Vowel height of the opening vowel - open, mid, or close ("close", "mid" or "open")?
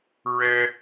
mid